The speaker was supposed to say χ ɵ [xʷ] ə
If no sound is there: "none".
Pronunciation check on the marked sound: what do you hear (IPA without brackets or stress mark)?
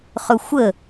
xʷ